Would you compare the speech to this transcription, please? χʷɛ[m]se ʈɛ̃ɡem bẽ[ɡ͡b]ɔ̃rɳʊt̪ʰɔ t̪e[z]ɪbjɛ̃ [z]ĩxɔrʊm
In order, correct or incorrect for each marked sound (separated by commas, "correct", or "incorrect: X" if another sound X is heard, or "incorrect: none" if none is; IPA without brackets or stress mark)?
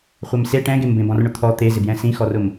correct, incorrect: b, correct, incorrect: s